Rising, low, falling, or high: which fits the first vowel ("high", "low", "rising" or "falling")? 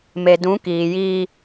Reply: low